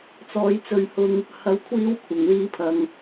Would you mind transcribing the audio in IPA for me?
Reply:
t͡s ɔː˨˧ j t͡s ɵ˧ ɥ h ʊ˧ ŋ | h ɐ˧ w kʷʰ iː˥ w kʷʰ ɐ˨˩ ŋ l iː˧ pʰ ɐ˨ ŋ

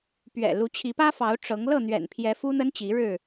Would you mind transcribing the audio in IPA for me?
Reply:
p ɥ ɛ̰˨˩ l u˨˦ t͡ɕʰ i˨˦ p ä˦ f ɑ˨˦ ʊ̯ ʈ͡ʂ ɤ˨˦ ŋ l ɤ˥˨ n̪ ɥ ɛ̰˨˩ n pʰ j ɛ˨˦ f u˦ n̪ ə˦ n t͡ɕ i˨˦ ɻ ɻ̩˥˨

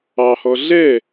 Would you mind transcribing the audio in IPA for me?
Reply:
ɑ h ɔ ɮ ɛ

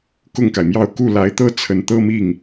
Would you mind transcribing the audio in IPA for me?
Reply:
k ʊ˥˩ ŋ k a˩ ɪ̯ m j ɑ˥˧ ʊ̯ k u˥˩ l a˧˥ ɪ̯ t̪ ɤ˥ t͡sʰ ə˧˥ n t̪ ɤ˥˧ m i˥˩ ŋ

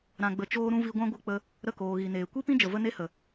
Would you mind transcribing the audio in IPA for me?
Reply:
ɾ ã˨ ɡ͡b ə˨ t͡ʃ oː˦ ɾ ũ˦ v i˧ ɡʷ ã˦ ɡʷ ɨ˦ k͡p ə˦ | ɾ ə˦˨ k oː˨ ɣ i˨ n eː˨ kʷ i˦ p ĩ˦ d͡ʒ ə˨ v ə˦ n e˦ h ə˨

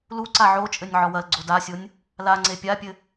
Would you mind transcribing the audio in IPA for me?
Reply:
l u ǀ a ʕ o t͡ʃʼ ɘ nʲ ʕ ɔ w ɐ l ɡ͡ǀ o d a sʲ o nʲ | l a ŋ͡ǀ e pʲ a pʲ ɘ

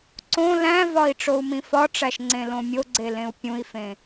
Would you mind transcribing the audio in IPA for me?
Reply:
ǀ õ l æ̃ v ɒ i̯ ʈ͡ʂ o u̯ m ĩ f ɒ ʈ͡ʂ æ ʃ ŋ͡ǀ ẽ l õ mʲ o ɡ͡ǀ e l ẽ u̯ pʲ ũ i̯ f ẽ

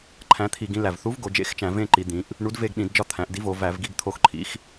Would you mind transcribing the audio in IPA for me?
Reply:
ǃʰ æ̃˨˥ t̪ʰ i˧˩˧ ɡ ĩ˨˥ l æ˩ v θ u˨˥ v ɡ o˩˧ d͡ʒ ḛ˨˥ x t͡ʃ æ̃˧˩˧ v ẽ˦˨ ǃ i˩˧ d̪ ĩ˩˧ ʔ | ɳ u˨˥ d v e˦˨ ɡ ɗ ĩ˧˩˧ d d͡ʒ ɒ˦˨ t̪ʰ æ̃˩˧ ʔ d i˨˥ v o˩˧ v æ˧˩˧ v ɡ i˦˨ ɡ t̪ʰ o˦˨ x ǃʰ ḭ˨˥ x

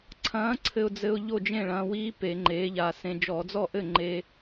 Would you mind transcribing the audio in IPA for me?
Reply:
ǀʰ ɐ̃ː˨˥ ǀʰ ɘ˧ ʊ̯ d͡z ɘ˧ ʊ̯ ʎ o˥˩ d͡ʒ ẽ˥˩ ɭ ɐ̃ː˧ w iː˦˥ p e˧˩˧ ŋ͡ǃ eː˨˥ ʎ a˧ s ẽ˧ d͡ʒ ɔ˧˩˧ d͡z ɔ˥˩ ʔ ɘ˥˩ ŋ͡ǃ eː˧

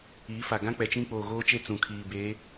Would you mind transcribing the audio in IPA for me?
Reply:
iː˨˦ f a˨ ɡ ã˦ k͡p ɛ˨ t͡ʃ ĩ˦ k͡p oː˨ ɣ oː˦ t͡ʃ e˦ t͡s ũ˨ kʰ iː˨ b e˨˦

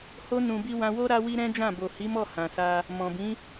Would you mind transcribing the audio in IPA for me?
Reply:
h o˦ n ũ˧ b i˦ w ã˧ w o˦ ɾ a˦ w i˦ ɾ ɛ̃˦ d͡ʒ ã˦˨ b o˨ h i˨˦ m ɔ˦˨ h ã˨ s a˧ | m ɔ̃˨ b ĩ˨˦

